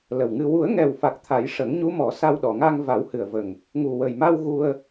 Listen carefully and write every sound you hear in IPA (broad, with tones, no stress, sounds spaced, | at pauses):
l ə˨˩ w ŋ ɨ˧ w u˨˩˦ ə̯ ŋ ɛ˨˩ w f a˨˩ k̚ t̪ʰ a˨˩˦ j ʂ ə˨˩˦ ŋ ɲ u˧˥ m ɔ˨˩˦ s a˧ w ɗ ɔ˨˩˨ ŋ a˧ ŋ v a˨˩˦ w h ɨ˨˩ ə̯ v ə˨˩ ŋ | ŋ u˨˩ w ə˨˩ j m a˧ w ɣ u˧ ə̯